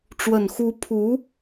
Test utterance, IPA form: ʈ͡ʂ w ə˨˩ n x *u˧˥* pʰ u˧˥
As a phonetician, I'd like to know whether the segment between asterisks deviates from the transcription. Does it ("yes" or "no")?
no